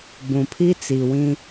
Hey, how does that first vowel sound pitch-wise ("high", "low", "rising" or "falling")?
low